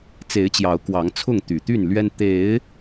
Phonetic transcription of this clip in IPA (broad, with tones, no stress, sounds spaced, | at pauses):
t͡s e˨˦ ɪ̯ t͡ɕ j ɑ˨˦ ʊ̯ k w ɑ˨˦ ŋ t͡sʰ ʊ˥˨ ŋ t̪ y˨˩ t̪ y˥˨ n l ɥ ɛ˦ n t̪ e˨˦ ɪ̯